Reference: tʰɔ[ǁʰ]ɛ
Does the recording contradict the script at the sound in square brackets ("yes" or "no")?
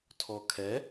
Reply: yes